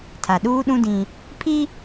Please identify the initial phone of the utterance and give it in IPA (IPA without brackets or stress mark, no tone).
tʰ